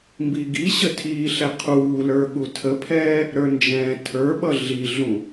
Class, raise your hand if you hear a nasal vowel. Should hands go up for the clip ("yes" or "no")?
yes